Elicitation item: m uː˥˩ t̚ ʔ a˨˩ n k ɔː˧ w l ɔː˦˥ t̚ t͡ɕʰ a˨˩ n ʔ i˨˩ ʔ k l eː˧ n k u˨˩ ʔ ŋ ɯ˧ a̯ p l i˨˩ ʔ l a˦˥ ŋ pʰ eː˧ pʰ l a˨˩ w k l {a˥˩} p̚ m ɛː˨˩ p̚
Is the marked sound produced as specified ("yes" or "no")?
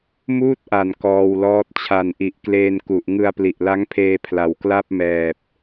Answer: yes